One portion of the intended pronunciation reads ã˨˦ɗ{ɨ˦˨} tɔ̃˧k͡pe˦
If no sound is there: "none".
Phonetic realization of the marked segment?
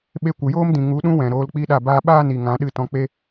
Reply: ɨ˦˨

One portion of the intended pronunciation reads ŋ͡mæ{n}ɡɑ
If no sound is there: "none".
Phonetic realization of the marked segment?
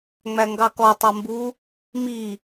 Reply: ŋ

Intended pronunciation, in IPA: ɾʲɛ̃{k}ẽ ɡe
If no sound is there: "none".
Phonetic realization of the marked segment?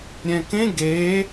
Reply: k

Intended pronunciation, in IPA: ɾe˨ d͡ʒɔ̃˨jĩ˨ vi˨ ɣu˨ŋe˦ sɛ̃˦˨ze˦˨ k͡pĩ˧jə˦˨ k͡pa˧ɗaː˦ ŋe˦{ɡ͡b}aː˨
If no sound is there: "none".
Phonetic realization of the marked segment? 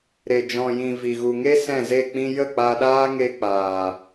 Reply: k͡p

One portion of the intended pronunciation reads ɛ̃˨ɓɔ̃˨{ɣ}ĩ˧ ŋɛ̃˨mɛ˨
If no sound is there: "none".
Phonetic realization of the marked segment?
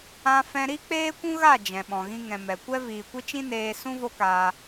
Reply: ɣ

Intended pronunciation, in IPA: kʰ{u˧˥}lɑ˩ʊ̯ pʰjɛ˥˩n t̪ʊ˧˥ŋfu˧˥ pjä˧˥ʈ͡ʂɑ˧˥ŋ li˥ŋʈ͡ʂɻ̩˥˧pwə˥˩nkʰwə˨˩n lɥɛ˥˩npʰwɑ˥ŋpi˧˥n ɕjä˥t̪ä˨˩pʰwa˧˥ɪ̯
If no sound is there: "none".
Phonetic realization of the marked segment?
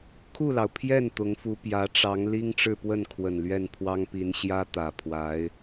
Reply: u˥˩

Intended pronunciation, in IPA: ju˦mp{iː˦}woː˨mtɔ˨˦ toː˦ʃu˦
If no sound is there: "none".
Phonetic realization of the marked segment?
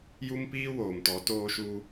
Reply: iː˦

